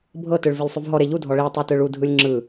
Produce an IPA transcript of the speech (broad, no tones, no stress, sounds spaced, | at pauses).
bʱ ɤ t ɯ ɭ v e lʲ sˤ u v ɦ ɔ ɾ e ʎ u dʱ ɔ ɭ i tˤ ɯ t ɯ ɭ u dʱ ɯ lʲ ŋ͡ǁ ɯ